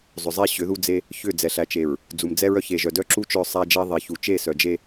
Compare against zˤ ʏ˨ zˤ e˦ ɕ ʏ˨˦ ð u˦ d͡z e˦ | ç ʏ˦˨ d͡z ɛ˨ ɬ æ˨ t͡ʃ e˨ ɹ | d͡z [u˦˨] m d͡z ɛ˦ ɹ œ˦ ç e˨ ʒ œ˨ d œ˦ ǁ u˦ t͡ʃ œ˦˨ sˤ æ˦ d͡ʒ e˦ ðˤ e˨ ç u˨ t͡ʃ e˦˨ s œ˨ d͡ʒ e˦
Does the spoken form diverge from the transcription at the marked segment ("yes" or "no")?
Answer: yes